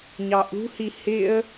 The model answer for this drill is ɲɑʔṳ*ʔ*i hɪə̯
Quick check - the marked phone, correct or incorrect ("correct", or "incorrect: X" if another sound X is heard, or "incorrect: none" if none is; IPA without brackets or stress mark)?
incorrect: h